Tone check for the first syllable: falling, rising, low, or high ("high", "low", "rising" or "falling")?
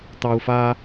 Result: high